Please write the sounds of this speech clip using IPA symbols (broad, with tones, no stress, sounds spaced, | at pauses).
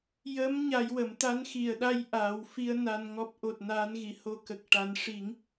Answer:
j ə˧˥ m ɲ a˧˥ j w ə˨˩˦ m t̪ a˧˥ n x i˨˩˨ ə̯ ɗ a˧ j ʔ a˨˩˦ w f i˧ ə̯ n a˧ n ŋ ɔ˦˥ p̚ ʔ o˨˩ t̚ n aː˧˥ n ɣ i˨˩˨ h o˧ k ə˨˩ k̚ ʈ a˨˩˦ n ʂ i˨˩˦ ŋ